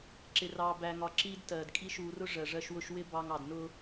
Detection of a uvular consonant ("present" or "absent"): absent